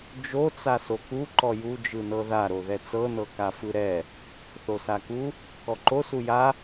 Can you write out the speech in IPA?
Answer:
d͡ʒ o t͡s a s o k u ǃ ɔ j u d͡ʒ ɯ n ɤ ð a ɾ o ð ɛ t͡s ɤ n ɤ k a f ɯ ɾ ɛ | θ o s a k u | k ɔ ǃ o s u j a

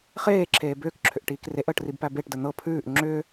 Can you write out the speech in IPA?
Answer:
χ eː ǁʰ eː b ʏː k ǁʰ ʏ ʔ ʈ iː k r e ʔ əː ʈ r i b p æ b e ʈ d ə n̪ ɤ pʰ ʉː ʔ ŋ͡ǁ ʏː

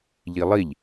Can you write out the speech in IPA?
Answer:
ʎ i lˠ i ʎ

